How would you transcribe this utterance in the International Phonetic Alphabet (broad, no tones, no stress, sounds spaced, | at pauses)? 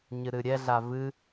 ɲ ɨ ɾ ɨ ɾʲ ɛ ɮ a v ɨ